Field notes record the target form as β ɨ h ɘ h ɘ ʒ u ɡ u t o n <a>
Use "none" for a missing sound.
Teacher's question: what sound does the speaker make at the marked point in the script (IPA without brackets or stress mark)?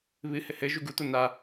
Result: a